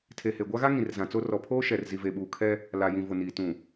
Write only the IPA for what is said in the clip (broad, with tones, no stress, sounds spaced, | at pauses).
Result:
tʰ e˨ h e˨ ɡʷ a˦ ɣ a˦ ŋ ĩ˨ r z ã˨ t͡s o˦ r ɔ˨ pʰ oː˦ ʃ ɛ˨ r z i˨ v e˨ ɓ uː˨ kʰ ɛ˦ | l a˨ j ĩ˨ v ʊ˨ n iː˨ t ũ˨